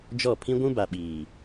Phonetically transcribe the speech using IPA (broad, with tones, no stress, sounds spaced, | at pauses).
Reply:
d͡ʒ ɔ˦˨ pʰ ĩ˦ ɡʷ ũ˦ b a˨ ɓ iː˨